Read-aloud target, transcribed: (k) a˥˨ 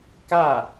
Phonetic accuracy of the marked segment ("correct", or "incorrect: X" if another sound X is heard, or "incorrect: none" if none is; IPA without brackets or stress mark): correct